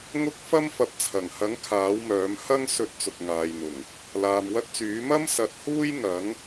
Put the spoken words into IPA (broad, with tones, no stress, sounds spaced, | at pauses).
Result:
ŋ ʊ˥ k̚ f ɐ˥ m f ɐ˨ p̚ t͡sʰ ɐ˨˩ ŋ h ɐ˨˥ ŋ kʰ aː˨˥ w m œː˨˥ m h ɐ˥ ŋ s ɵ˧ t̚ t͡s ʊ˨ k̚ ŋ aː˨ j n̪ ʊ˨˩ ŋ | l aː˨ m w ɐ˥ t̚ t͡s yː˨˥ m ɐ˥ m s ɐ˨˥ t̚ h uː˥ j ŋ ɐ˨˥ ŋ